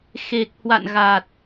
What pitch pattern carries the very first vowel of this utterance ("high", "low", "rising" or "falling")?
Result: low